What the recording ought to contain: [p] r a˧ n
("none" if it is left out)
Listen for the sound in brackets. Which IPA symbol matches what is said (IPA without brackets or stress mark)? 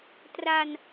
t